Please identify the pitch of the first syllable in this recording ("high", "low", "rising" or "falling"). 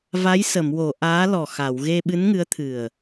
rising